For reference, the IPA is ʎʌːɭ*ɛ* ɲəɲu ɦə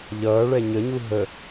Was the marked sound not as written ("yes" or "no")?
no